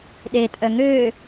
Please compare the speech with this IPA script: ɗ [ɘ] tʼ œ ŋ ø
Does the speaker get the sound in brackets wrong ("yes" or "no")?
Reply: yes